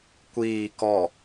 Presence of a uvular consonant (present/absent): absent